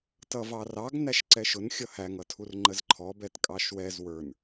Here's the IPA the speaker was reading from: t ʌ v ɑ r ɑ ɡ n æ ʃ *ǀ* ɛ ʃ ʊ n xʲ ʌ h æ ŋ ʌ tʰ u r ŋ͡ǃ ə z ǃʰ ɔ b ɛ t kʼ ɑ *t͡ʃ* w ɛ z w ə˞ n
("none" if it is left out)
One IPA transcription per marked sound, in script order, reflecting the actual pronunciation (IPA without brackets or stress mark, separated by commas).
ǀ, ʃ